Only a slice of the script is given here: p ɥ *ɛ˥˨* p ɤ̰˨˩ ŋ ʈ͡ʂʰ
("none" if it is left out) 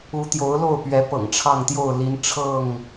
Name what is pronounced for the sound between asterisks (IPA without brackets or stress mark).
ɛ˨˦